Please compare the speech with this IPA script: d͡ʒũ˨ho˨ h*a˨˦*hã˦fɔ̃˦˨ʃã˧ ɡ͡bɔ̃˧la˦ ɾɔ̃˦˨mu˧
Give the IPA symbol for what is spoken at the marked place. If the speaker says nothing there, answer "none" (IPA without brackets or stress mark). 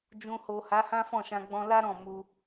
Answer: a˨˦